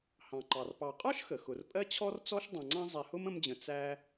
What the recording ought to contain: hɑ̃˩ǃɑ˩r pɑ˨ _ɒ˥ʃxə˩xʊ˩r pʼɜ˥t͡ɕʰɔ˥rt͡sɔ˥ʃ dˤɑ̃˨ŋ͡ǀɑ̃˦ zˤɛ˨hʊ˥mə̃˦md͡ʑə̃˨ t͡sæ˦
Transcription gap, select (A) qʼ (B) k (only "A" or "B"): A